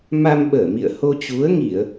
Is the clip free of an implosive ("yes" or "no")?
no